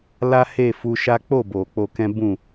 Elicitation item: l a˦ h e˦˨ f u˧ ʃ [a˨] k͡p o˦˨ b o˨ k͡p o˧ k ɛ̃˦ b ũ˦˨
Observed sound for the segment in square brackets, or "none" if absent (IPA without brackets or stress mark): a˦